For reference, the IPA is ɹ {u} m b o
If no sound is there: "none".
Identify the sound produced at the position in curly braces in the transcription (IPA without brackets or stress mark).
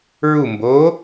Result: u